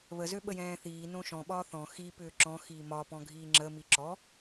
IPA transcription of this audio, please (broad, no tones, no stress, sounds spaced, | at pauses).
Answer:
β ə z ø ɓ ə j ɛ̃ː θ iː n õ ʃ ɔ̃ ɓ ɒː θ ɔ̃ x i p ʏː ǁ ɔ̃ x iː m ɒ p ɔ̃ ɡʱ iː ŋ͡ǁ ə m i ǁ ɔ